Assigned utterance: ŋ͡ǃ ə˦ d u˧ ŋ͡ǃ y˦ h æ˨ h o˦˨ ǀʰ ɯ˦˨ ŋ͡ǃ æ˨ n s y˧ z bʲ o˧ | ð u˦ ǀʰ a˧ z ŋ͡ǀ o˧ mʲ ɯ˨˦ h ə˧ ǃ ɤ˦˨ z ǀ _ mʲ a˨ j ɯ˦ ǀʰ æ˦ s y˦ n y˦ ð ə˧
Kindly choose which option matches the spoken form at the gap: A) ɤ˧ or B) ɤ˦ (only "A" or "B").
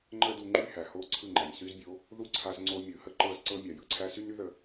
B